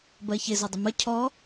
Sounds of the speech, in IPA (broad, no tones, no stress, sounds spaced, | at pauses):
b ɜ ç ɪ z ɔ dˤ ə m ə cʰ ɔ